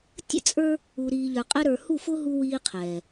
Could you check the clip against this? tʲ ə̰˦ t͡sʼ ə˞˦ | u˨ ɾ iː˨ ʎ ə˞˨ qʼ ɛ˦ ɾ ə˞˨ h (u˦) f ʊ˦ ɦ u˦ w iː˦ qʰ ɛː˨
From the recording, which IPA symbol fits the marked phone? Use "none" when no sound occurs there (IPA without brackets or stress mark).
u˦˨